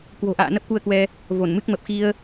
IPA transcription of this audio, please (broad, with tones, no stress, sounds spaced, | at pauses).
k w o̤˨˩ ʔ a̰ː˧˨ n ə˦˥ p̚ k u˧ ə̯ k w ɛ˧ | v o˧˩ n m ɨ˦˥ k̚ m ə˨˩ p̚ x i˧ ə̯